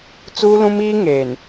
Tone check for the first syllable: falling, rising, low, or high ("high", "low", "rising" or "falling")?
high